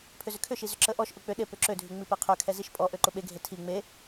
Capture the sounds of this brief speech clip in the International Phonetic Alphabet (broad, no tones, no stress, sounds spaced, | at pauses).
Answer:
pʰ ʏ z ʏ kʰ ʏ ʃ i z ʏ ǁ ə ʔ ɔ ʃ ʔ ʊ k͡p ʏ ɗ e p ʏ ǁ ø dʱ y ŋ͡m i p e qʰ ø kʰ ɛ z i ʃ pʼ ɔ ʔ ø ǃ ʊ ɓ e ɡʱ e tʰ i ŋ͡m e